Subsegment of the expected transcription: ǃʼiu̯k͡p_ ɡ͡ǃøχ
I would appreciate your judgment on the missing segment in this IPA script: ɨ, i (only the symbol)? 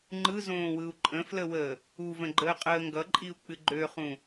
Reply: ɨ